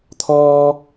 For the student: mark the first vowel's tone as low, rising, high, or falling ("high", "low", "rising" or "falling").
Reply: high